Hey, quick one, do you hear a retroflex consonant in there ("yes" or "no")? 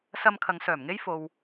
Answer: no